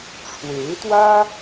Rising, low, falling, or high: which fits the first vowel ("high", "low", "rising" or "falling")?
rising